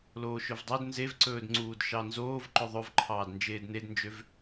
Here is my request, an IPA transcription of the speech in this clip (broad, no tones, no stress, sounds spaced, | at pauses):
l oː ʃ ɵ v dˤ o d n z e v ǀ ɵː d ŋ͡ǀ uː d ʃ ɑ n z oː v ǃ ɵ ðˤ ɵ v ǃʰ ɑː d n d͡ʒ eː d n e d n d͡ʒ ø v